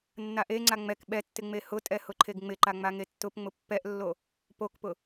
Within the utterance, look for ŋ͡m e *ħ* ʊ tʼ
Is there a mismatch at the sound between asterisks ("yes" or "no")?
yes